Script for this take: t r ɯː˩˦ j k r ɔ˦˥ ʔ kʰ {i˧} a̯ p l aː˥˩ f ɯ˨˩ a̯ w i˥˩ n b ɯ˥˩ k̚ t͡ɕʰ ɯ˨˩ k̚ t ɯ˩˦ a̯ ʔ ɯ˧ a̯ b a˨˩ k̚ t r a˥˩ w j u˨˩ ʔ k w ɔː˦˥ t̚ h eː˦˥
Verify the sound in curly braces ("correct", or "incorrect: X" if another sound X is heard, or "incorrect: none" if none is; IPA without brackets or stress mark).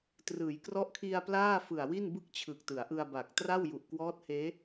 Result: correct